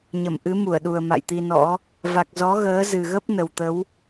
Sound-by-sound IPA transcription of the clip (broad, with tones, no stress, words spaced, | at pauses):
ɲə˧˩mʔɨ˨˦ mu˧˩ə̯ɗu˨˩ə̯ ma̰˧˨jt̪i˧nɔ̰˧˥ | va˨˩k̚ zɔ˨˦ɣəː˨˦ zɨ˨˩ɣə˦˥p̚ nə˨˩wt̪ə˨˦w